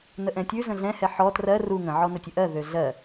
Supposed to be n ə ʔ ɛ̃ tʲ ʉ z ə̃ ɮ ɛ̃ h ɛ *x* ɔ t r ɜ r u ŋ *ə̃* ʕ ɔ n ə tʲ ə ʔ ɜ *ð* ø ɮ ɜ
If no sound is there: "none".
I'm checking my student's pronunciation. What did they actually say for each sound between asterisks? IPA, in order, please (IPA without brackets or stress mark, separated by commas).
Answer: ħ, ə̃, ð